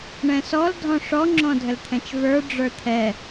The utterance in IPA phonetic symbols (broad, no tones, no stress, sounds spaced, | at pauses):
ɳ ɛ̃ s ɔ l dʱ ɔ̃ ʂ ɔ ŋ͡ǁ ɔ̃ dʱ ə l t̪ʰ ɛ̃ t͡ʃ v ə˞ ɖ͡ʐ ə˞ t̪ʰ ɛ